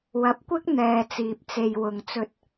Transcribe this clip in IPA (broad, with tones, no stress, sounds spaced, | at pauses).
w ɐ˨˥ p̚ kʷ ɪ˥ k̚ n̪ ɛː˨ t͡s iː˨ p̚ t͡s e˨ j w ʊ˨ ŋ t͡s ɵ˧ t̚